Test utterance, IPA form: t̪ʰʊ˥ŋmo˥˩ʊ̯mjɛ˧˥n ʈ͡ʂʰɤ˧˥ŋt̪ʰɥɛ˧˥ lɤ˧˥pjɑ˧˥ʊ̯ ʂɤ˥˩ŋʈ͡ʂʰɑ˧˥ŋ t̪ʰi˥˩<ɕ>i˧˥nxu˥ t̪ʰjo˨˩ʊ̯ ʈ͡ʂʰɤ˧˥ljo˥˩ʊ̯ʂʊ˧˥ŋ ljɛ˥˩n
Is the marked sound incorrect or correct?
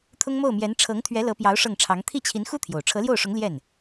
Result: incorrect